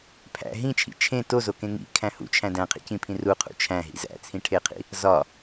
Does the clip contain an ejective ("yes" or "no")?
no